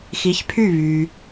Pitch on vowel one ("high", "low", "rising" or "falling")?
rising